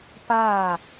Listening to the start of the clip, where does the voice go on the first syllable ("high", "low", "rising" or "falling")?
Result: falling